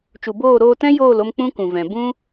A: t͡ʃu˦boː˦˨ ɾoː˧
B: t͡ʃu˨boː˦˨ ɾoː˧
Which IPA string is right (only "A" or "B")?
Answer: B